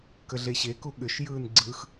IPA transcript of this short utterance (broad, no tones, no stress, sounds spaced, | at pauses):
k ə ɮ e ɕ e k u ɠ ʏ ʃ j ɯː n ɡ͡ǀ ɯ x